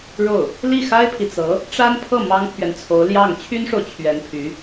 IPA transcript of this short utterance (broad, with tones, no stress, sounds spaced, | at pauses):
ɻ o˥˩ ʊ̯ | l i˥˩ x a˥ ɪ̯ pʰ i˨ t͡s ɤ˧˥ | ʈ͡ʂ a˥ n pʰ ɤ˥˩ m ɑ˥ ŋ pʰ ɥ ɛ˨ n t͡sʰ o˧˥ ʊ̯ l j ɑ˥˩ ŋ t͡ɕʰ y˥ n ʂ o˨ ʊ̯ t͡ɕʰ ɥ ɛ˧˥ n pʰ y˧˥